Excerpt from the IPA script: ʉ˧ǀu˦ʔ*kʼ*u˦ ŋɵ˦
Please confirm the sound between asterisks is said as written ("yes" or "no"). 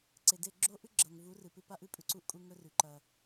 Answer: yes